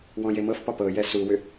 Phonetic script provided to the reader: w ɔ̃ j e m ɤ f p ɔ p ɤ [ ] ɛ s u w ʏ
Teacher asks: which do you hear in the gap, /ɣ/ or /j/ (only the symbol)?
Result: j